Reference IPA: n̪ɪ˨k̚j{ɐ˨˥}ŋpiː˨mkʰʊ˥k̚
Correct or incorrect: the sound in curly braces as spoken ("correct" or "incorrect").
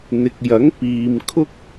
correct